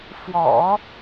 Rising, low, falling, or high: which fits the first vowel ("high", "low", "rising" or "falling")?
low